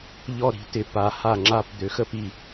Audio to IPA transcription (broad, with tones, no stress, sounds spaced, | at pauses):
ʎ ɔ˦˨ ɾ i̤˩˥ t ɪ˩˥ p a˩˥ h a˦˨ ŋ͡ǁ a˦˨ p d̪ ø˩˥ x ə˦˨ p i˦˨